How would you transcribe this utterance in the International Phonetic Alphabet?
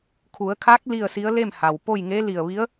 kʰu˩˧ə̯kʰa˧˥k̚ li˥˨ə̯si˧˥ə̯ le˥˨mha˩wpo˥˨jŋe˧˥ li˧˩ə̯ʋi˧˥ə̯

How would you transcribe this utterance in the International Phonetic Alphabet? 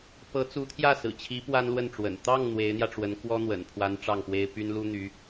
pɤ˧˥ t͡su˧˥t̪ʰjä˥˩sɹ̩˨˩t͡ɕʰi˧˥ pwa˥nlwə˥˩nʈ͡ʂwə̰˨˩n t̪ɑ˥˩ŋ n̪we˧˥ɪ̯n̪jä˧ʈ͡ʂwə˧˥n kwɔ˥n̪wə̰˨˩npʰwa˧˥n ʈ͡ʂɑ˥˩ŋpwe˥ɪ̯ py˥nlu˥n̪y˧˥

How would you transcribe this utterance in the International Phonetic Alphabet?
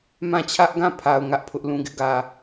mã˦˨t͡ɕʰä˦ʔɡã˦˨ pʰa˨ʊ̯ ŋä˦ʔpʰʊ˦ʔ lũ˨ɡɪ˦ʔɡä˨

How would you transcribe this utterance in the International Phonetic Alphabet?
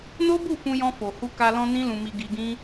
no˦bu˦˨ fũ˧jɔ̃˧fo˨ hu˧ka˧lɔ̃˧ nĩ˦lũ˧mi˧ ɡi˧ɡĩ˦

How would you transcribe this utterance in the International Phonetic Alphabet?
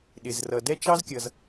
ɗɪ˩zrʌ˩ dɛ˥ t͡ʃɑ˥zkʲʌ˩z

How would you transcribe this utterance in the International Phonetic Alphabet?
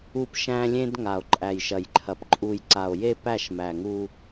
u˦pʃæ̃˦lʲẽ˦d ŋa˨o̯ǃʼæ˨jʃɐ˨jǃʰɐ˨p ǃʼu˨j ǀa˨o̯je˦ pæ˦˨ʃmæ˨ŋu˦

